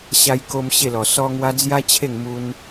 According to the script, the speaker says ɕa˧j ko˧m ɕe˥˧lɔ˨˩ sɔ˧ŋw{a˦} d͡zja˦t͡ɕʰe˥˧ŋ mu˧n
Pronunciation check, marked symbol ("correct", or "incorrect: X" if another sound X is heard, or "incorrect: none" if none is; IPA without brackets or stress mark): incorrect: a˧